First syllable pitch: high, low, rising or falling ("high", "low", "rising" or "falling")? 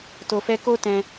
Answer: low